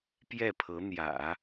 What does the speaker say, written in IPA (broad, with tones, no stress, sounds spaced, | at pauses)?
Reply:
p j ɛ˥˩ pʰ ɤ˧˥ n̪ j ä̰˨˩˦